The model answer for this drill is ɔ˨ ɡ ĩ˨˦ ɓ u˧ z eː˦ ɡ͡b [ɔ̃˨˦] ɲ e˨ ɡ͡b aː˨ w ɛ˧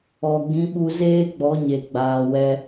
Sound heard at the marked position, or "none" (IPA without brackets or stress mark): ɔ˨˦